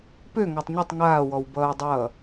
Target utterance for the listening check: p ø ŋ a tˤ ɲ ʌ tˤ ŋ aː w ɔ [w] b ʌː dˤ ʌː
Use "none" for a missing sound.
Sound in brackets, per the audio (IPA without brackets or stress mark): w